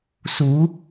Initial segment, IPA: s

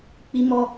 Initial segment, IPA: k͡p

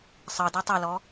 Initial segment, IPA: sˤ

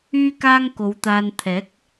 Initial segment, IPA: yː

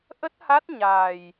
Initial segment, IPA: ʔ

